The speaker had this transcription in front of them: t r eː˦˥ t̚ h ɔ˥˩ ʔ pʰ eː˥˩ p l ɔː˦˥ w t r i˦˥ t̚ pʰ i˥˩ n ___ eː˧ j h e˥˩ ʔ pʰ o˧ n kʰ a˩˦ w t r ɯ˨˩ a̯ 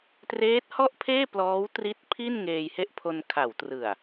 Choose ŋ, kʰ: ŋ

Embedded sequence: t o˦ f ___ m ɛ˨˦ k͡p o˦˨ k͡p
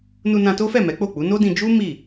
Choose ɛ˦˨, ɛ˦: ɛ˦˨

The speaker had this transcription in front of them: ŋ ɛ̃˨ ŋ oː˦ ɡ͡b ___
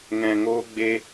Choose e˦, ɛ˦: e˦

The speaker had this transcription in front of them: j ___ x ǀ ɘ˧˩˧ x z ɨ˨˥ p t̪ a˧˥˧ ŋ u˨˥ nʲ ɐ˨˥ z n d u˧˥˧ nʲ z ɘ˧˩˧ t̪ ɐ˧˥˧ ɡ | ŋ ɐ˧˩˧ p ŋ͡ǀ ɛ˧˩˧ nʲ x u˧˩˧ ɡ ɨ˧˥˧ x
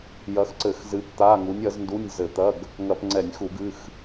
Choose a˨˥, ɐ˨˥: ɐ˨˥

